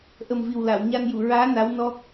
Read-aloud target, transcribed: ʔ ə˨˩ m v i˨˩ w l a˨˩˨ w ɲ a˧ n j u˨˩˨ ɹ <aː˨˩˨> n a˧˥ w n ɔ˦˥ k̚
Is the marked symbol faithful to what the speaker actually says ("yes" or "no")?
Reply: no